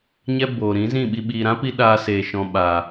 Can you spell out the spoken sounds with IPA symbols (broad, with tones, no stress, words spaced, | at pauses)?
ɲɛ˦ boː˨ ɾĩ˨˦zĩ˦˨ɓi˧ ɓiː˨ɾã˦pi˧ ɗaː˧seː˨ ʃɔ̃˨ ɓaː˨